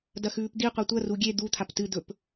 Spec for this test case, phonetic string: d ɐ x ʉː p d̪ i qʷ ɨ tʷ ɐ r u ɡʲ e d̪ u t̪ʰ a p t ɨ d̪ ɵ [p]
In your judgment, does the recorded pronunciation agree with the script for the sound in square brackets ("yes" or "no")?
yes